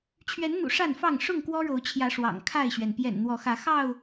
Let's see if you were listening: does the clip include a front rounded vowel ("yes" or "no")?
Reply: no